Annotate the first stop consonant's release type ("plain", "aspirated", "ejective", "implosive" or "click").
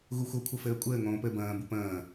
aspirated